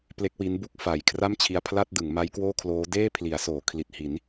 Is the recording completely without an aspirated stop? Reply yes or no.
no